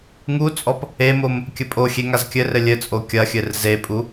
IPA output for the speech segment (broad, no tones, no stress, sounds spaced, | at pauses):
ŋ u t͡sʼ ɔ p | e m o m | kʲ ɘ pʼ o xʲ e ŋ a z kʲ ɘ r ɘ lʲ ɘ t͡sʼ o kʲ ɐ xʲ ɘ r z e pʼ u